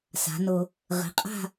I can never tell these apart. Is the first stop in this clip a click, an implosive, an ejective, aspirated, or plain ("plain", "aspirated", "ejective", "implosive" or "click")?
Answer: ejective